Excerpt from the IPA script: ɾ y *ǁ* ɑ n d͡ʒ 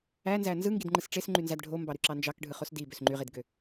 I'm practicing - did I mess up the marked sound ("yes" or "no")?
no